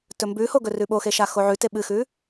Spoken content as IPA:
t ɵ m b ʉ h o ɡ ɵ r ʉ ɓ o x e ʃ a x o ʕ ʉ t e ɓ ɨ x ʉ

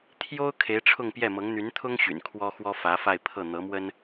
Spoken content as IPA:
t̪ʰ j o˥ ʊ̯ kʰ e˧˥ ɪ̯ ʈ͡ʂʰ ʊ˥˧ ŋ p j ɛ˥˩ m ɤ˧˥ ŋ n̪ y˧˥ n t̪ʰ ʊ˥ ŋ ɕ y̰˨˩ n kʰ w ɔ˥ x w ɔ˥ f ä˧˥ f a˥˧ ɪ̯ pʰ ɤ˥˩ n̪ ɤ˧˥ m w ə˥ n

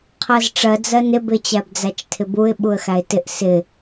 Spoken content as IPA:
qʰ ɜ z ʈ͡ʂ ɜ d͡z ɜ n ɪ b ɪ t͡ɕ æ b d͡z æ t͡ʃ tʰ ɪ b u ɪ̯ ɓ u ə̯ x æ ɪ̯ t ɪ ʔ s ɪ

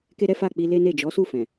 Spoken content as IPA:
k e˦ ɾ ɛ˦ f a˦˨ k͡p i˧ l e˦ n e˦˨ d͡ʒ ɔ˨˦ s u˦˨ f ɛ̃˨

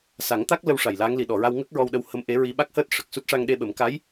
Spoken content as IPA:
s a˨˩˦ ŋ t̪ a˦˥ k̚ l ə˧ w ʂ a˨˩ j l aː˧˥ ŋ l i˨˩ ɗ ɔ˨˩˨ ɹ a˧ w ŋ əː˦˥ k̚ ɹ ɔ˧ w ɗ ə˧ w h ə˧ m ʔ e˧˥ ɹ i˧ ɓ a˦˥ k̚ h əː˦˥ t̚ ʂ ə˨˩ k̚ s u˦˥ t̚ ʂ a˧ ŋ ɗ e˧ ɓ ə˨˩˦ m k a˧˥ j

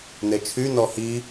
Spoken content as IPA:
n e t͡ʃʰ y n ɔ h i

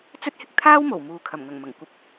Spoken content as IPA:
t͡s ɵ˥ t̚ h ɪ˧ k̚ t̪ʰ aː˥ w m o˨˩ w m uː˨ kʰ ɐ˨˩ m ŋ ɐ˨˩ ŋ m ɐ˨˩ ŋ kʷ ɐ˨˥ p̚

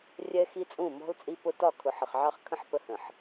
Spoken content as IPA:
rʲ ɛ˦ x i˦ t͡sʼ ũ˦˨ m ɔ̤˦ l t͡sʼ i˦ p ʊ˦ t ɒ˦˨ kʰ ʊ˨ ħ ə˨ χ ʕ ɑ˦ χ kʰ ə̃˦ ħ p ə˦ h ə̃˨ ħ

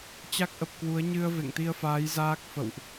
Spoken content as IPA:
t͡ɕ a˦˥ k̚ ʔ ə˨˩ p̚ k w u˨˦ ə̯ ɲ ɨ˧ ə̯ v ḛ˧˨ ŋ t̪ i˧ ə̯ f aː˨˦ j z aː˦˥ k̚ f ə̰˧˨ w ʔ

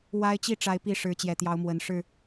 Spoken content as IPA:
w a˦ ɪ̯ t͡ɕ i˥˨ ʈ͡ʂ a˨˦ ɪ̯ p i˨˦ ʂ ɻ̩˨˦ t͡ɕ j ɛ˨˩ t̪ j ɑ˨˦ ʊ̯ m w ə˨˩ n ʂ ɻ̩˥˨

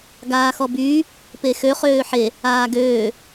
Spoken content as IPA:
ɡ aː x ɔ b yː | p e x ø χ øː ħ e | aː ɡ øː

